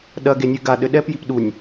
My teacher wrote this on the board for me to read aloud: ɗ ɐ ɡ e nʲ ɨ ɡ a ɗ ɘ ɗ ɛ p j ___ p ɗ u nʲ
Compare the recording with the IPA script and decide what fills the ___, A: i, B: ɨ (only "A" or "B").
A